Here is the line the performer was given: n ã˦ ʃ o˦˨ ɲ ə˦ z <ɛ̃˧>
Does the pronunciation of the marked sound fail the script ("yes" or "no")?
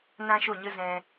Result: no